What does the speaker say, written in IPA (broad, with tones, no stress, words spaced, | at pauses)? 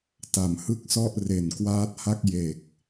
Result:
ta˩˦mhɯ˥˩k̚sɔ˥˩ʔ re˨˩n kwaː˦˥t̚ha˥˩k̚ je˨˩k̚